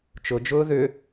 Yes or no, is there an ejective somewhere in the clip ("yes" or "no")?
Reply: no